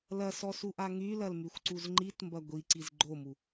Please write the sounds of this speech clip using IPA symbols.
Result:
l ɐ s ɔ s u ʔ a ŋ y l ɐ l m y xʷ ǀ u z ŋ͡ǃ i t m b ɐ ɡʷ i ǀ i z ɡ͡ǃ o m u

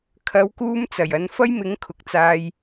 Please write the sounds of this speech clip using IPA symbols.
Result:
kʰ ɐ˨˧ w k uː˧ m t͡s ɐ˨˩ j ɐ˨˧ n f ɐ˥ j m ɪ˨˥ ŋ kʰ ʊ˨˥ k̚ t͡s aː˧ j

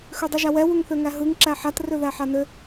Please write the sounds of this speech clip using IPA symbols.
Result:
x ø dˤ ɯ ʒ a w ɛ w u ŋ θ ø ŋ æ ɦ ɯ ŋ ǁ æ ħ a t r ø ð æ ħ a n ø

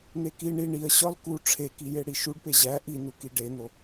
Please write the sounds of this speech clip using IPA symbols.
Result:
n̪ e k i ɳ i ɳ i ə̯ ɕ ɒ l k u ʈ͡ʂʰ e k i j e ɽ i ʃ u ɖ p e ʑ æ ʔ i n u k i ɖ e n̪ o

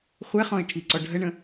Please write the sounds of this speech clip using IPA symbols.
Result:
χʷ ɛ χ ɔ̃ i̯ ʈʰ i ǀ ɔ ɖʱ ə ɳ ə̃

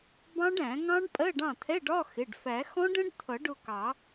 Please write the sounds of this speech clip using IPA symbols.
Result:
b ɑ̃˦˥ ɖ æ̃˨˩˦ ŋ ɑ̃˦˥ ɖ pʼ ɜ˧˥˧ ɖ ɑ̃˥˩ t̪ʰ ɛ˧˥˧ ɖ ɒ˧˥˧ x ɪ˩˧˩ ɖ f æ˨˩˦ x ɔ̃˦˥ ɖ ə̃˦˥ ɖ t̪ʰ ʌ˨˩˦ ɖ ʊ˩˧˩ k ɑ˨˩˦

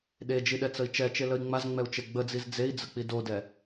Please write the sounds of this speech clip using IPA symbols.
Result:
ɗ e d͡ʒ i ɗ ɛ t͡s ə i̯ t͡ʃ ɛ t͡ʃ e l ə i̯ ŋ͡m a z ŋ͡m ɛ u̯ t͡ʃ e ɡ͡b ə d͡z i z d͡z e i̯ d͡z ə k͡p i d o d ɛ

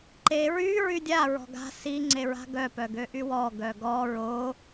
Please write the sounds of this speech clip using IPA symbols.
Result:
ǃ e ɹ y ɹ y dʲ a ɹ ɔ̤ ɡ a̤ s i ŋ͡ǀ e ɹ a̤ ɡ œ p œ ɡ ø ʔ y w ɔ ɡ œ ɡ ɔ ɹ o

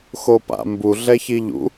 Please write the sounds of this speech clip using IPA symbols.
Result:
x o p a̰ m b u ɮ ɛ ç i ʎ ṵ

